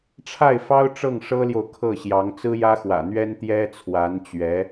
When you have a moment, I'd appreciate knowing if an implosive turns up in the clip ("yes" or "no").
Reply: no